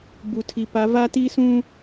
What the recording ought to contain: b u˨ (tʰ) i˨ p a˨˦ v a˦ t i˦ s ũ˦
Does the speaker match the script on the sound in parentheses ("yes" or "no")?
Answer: yes